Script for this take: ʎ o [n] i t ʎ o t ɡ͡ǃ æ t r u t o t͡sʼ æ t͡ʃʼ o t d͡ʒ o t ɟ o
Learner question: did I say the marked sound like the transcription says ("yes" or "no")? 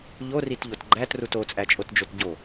no